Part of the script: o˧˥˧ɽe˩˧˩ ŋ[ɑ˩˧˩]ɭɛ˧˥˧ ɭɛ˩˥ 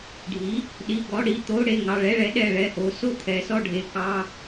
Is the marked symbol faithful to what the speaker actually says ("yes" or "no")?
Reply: yes